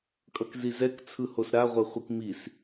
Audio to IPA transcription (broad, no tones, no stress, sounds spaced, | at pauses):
kʼ ʌ k z i z ɛ k t͡sʰ ɯ h o s ɾ a ʁʷ ɛ χʷ i k m i s